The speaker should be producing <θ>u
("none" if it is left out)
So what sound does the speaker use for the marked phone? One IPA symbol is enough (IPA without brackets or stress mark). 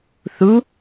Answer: θ